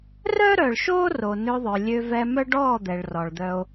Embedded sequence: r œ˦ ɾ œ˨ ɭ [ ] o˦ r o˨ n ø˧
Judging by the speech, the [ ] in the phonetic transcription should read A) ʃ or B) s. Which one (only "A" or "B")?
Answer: A